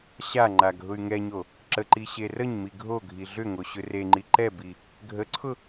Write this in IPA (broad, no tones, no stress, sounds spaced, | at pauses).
ɕ a ŋ͡ǃ a ɡʱ ʊ y̯ ŋ ɛ ɲ o | ǁ ə ǃ i ɕ e r ə ɲ m i ɡʱ o ɡʱ i ɮ ʏ ŋ o ɕ ʏ r e ŋ͡ǃ i ǃ ɛ b i | ɡʱ ə ǀʰ ʊ